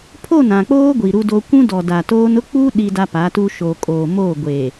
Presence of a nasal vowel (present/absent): present